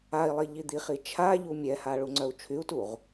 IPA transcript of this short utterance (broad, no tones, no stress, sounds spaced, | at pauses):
a i̯ lˠ i ʎ i d̪ i χ i t͡ʃʰ a ʎ u mʲ ɛ h a ɭ u ŋ͡ǀ œ u̯ t͡ʃʰ y u̯ t u ʁ